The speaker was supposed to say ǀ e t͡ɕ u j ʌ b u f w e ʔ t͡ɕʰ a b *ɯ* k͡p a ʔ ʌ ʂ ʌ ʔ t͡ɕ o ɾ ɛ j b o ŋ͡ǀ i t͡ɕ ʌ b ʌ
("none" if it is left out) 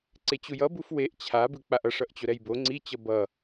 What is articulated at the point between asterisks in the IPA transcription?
ɯ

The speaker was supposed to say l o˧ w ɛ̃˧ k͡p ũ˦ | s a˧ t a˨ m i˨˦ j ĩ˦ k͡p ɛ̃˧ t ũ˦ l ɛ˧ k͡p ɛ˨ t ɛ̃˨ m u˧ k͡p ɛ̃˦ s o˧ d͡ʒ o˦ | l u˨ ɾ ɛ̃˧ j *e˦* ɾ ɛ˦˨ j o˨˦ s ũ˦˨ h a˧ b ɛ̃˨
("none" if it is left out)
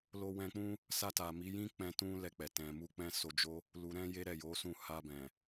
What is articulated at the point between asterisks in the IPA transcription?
e˦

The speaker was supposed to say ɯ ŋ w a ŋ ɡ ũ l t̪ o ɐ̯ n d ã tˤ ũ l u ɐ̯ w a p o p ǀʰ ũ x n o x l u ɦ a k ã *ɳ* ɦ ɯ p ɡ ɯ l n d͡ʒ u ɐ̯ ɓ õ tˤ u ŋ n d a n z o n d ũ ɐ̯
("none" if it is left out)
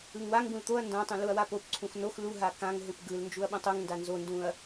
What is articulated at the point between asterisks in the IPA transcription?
ŋ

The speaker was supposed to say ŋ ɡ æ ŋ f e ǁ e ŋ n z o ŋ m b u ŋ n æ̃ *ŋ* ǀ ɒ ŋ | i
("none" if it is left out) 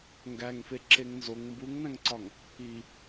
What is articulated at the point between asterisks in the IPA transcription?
ŋ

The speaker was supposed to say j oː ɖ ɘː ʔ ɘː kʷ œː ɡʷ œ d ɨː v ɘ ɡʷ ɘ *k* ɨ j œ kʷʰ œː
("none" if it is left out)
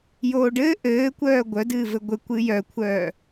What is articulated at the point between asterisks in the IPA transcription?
kʷ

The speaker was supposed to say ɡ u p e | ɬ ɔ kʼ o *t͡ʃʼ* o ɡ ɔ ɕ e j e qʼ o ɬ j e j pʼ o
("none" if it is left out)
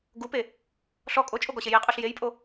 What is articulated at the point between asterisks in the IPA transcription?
t͡ʃʼ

